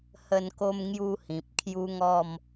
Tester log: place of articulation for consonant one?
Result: glottal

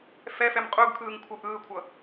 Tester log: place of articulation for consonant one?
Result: labial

